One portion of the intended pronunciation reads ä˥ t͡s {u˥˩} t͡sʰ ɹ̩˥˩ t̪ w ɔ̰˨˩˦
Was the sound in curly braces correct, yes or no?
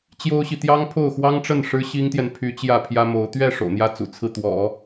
no